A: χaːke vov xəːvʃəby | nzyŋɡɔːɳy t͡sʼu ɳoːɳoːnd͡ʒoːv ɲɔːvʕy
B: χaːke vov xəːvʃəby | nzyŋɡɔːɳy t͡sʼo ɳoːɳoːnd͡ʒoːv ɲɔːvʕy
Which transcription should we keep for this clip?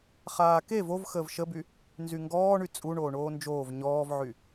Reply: A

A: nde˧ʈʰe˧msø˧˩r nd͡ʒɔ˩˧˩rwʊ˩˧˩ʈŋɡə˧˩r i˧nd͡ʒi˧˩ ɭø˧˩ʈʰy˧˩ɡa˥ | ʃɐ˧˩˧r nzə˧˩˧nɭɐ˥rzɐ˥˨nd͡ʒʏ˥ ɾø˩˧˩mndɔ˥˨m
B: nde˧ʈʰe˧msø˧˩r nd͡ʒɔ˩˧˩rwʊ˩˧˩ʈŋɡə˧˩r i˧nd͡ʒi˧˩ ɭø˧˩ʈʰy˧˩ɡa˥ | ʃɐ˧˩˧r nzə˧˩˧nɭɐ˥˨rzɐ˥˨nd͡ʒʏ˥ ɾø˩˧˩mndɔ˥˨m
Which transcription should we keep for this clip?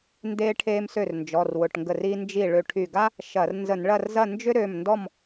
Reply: B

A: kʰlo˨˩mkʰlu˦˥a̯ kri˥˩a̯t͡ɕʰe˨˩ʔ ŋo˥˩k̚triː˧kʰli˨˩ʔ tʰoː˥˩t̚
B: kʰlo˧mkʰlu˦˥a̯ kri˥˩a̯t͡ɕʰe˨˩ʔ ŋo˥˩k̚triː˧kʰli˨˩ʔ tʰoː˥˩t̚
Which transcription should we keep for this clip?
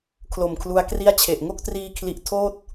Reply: A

